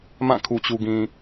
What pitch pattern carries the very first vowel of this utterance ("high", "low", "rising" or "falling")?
falling